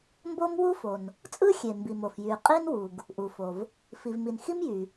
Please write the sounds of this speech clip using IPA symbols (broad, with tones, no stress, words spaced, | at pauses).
mbo˥mwu˥fo˩n | t͡sʼɯ˥xʲe˩mbi˩mo˩f jy˩qʼi˥nwu˩ɡ | ʔu˩fo˩v | fi˩vmi˩nxi˥m jy˩